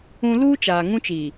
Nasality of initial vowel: nasal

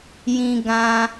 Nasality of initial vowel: nasal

